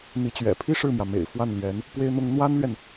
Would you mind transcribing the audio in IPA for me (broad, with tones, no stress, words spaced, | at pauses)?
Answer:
n̪i˧˥t͡ɕɥɛ̰˨˩ pʰi˥ ʂɻ̩˥˩mjä˩ mḛ˨˩ɪ̯fwa˥˩nlɥɛ˧˥n | pwe˥ɪ̯n̪ʊ˥ŋ n̪wa˥nlɥɛ˨n